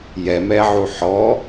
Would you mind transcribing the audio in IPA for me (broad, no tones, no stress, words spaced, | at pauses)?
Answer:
jɛmɛʕu ħɔ